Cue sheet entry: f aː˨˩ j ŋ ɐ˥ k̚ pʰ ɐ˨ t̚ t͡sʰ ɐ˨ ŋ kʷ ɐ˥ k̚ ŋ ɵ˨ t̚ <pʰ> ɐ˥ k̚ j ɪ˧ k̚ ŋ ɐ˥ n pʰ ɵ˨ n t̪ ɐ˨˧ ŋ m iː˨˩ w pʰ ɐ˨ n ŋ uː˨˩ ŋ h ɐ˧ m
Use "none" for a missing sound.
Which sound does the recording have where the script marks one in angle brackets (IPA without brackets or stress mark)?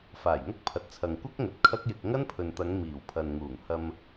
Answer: kʰ